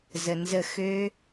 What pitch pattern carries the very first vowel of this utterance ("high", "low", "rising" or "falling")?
low